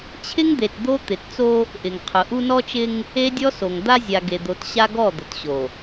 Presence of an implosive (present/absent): absent